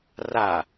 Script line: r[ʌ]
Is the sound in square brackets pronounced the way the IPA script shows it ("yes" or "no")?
no